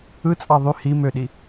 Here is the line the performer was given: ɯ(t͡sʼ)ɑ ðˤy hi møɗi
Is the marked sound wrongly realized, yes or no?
no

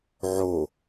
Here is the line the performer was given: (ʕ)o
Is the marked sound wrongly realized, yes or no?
no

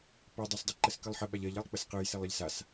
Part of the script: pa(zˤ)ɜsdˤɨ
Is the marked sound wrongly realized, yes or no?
yes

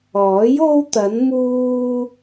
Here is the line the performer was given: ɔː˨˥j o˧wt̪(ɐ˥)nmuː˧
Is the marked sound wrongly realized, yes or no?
yes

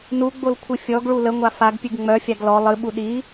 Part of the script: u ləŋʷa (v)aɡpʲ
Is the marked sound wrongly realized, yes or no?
yes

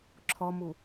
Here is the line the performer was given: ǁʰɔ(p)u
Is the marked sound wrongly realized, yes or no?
yes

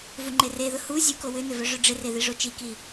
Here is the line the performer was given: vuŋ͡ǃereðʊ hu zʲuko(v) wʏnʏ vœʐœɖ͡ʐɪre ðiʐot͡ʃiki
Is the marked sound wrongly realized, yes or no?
yes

